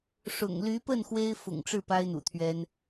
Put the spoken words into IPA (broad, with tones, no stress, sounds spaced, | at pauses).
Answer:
ʂ ʊ̰˨˩ ŋ l y˧˥ p ə˥˩ n x w e˥ ɪ̯ f ʊ̰˨˩ ŋ ʈ͡ʂ ɻ̩˥˩ p a˥ ɪ̯ n̪ ṵ˨˩ t̪ʰ ɥ ɛ˥ n